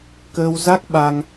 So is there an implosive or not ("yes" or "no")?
yes